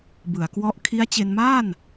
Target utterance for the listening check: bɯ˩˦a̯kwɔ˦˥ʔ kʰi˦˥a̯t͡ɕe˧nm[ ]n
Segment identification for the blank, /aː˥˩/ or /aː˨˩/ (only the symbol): aː˥˩